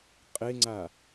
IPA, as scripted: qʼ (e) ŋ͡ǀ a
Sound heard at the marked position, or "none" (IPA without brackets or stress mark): e